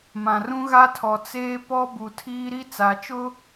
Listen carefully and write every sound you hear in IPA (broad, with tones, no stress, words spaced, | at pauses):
mã˨rũ˦ɣa˦tʰɔ˨ t͡seː˦pɔ˦ bu˨tʰiː˦ɾi˦ t͡sa˨t͡ʃʊ˦